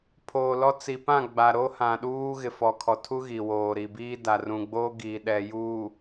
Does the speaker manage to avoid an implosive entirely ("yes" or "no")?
no